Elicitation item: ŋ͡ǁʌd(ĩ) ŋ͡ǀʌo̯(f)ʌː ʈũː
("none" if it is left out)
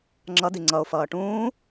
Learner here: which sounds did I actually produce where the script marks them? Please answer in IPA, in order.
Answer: i, f

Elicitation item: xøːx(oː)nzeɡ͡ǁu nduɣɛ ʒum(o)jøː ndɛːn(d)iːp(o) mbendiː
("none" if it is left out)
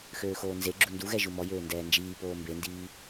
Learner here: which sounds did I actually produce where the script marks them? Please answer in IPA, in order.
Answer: oː, ɔ, d͡ʒ, oː

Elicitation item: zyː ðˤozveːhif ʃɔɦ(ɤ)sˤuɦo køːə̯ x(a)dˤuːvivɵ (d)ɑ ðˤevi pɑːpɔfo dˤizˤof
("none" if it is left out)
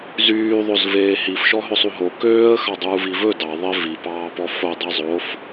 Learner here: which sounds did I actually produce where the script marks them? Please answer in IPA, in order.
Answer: ɵ, ɑ, d

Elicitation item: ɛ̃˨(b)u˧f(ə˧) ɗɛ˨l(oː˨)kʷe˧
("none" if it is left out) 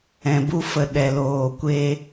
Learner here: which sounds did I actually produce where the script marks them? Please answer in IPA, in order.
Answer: b, ə˨, oː˨

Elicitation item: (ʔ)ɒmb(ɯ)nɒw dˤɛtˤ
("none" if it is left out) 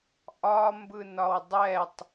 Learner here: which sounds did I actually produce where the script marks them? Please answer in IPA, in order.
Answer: ʔ, ɯ

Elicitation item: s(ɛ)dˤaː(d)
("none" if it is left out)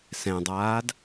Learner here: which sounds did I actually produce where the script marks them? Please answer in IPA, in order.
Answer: ɛ̃, d

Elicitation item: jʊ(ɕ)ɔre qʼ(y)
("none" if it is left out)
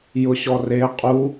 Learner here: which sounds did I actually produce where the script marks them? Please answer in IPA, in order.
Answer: ɕ, u

